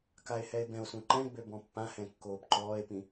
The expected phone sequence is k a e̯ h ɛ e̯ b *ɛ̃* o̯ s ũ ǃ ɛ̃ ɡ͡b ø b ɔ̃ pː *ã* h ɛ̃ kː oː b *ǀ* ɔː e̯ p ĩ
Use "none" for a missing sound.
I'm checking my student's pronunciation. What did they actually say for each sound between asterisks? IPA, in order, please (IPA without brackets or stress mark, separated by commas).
ɛ̃, ã, ǃ